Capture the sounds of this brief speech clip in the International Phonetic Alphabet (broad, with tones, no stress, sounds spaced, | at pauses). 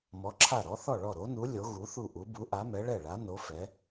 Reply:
m ɔ˨˥ ǁʰ a˥˩ ɾ ɔ˨˥ θ ɔ˥˩ ɭ ɔ˥˩ ɾ o˨˥ n u˨˥ lʲ o˨˥ ɣ u˨˥ θ u˥˩ ʔ u˨˥ b u˨˥ ʔ a˨˥ m ɛ˨˥ ɭ ɛ˥˩ ɭ a˨˥ n o˨˥ f ɛ˨˥